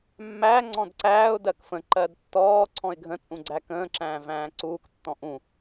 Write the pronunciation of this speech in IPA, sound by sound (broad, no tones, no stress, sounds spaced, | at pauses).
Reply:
mː æ ŋ͡ǀ ɔ̃ d ǀ æː ʊ̯ d ɜ k f ə̃ ǃ ɜ d tː ɔː ǀʰ ɔ̃ ɪ̯ ɡʱ ə̃ t͡sʼ ũ ɡ͡ǀ æ k ə̃ː ǁ æ̃ː v æ̃ː ǀ uː k tː ɔ̃ ʔ ũ